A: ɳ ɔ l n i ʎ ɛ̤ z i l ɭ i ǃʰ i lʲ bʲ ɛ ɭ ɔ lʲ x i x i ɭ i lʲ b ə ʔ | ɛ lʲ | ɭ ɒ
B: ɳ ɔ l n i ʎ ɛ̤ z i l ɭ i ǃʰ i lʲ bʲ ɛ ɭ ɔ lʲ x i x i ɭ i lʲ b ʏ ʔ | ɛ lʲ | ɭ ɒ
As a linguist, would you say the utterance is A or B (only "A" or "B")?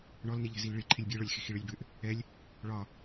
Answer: B